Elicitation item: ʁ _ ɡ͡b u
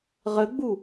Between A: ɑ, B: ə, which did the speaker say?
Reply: B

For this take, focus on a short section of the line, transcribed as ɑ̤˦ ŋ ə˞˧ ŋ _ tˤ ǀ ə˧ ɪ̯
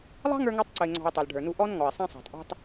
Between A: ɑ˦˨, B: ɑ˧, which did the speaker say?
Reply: B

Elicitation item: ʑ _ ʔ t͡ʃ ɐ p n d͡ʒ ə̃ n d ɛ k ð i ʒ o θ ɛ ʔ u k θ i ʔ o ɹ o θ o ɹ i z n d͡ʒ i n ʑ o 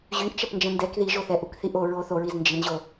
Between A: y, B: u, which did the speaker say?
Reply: A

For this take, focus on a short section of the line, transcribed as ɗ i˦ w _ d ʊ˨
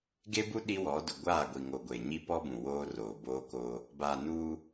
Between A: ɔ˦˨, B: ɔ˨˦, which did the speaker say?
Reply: B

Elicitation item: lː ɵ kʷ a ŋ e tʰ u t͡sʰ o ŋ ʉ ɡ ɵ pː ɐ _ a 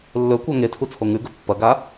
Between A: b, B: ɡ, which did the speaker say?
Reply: B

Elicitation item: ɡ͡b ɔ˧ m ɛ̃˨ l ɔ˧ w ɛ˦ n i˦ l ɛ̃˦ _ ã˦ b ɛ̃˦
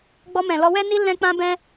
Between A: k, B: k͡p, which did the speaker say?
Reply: B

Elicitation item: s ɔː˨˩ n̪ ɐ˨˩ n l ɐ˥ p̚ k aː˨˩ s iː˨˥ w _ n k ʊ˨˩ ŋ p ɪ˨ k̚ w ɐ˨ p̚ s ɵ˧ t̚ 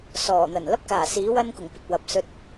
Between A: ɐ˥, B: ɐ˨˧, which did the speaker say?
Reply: A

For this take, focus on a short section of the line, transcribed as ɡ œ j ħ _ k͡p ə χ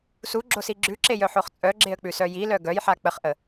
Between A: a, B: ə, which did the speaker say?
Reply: A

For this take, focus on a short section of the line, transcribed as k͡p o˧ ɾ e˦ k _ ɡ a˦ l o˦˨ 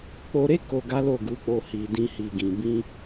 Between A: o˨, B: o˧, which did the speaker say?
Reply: B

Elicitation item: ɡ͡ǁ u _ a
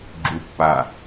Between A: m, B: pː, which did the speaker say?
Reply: B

